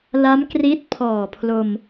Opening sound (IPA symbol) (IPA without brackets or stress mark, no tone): l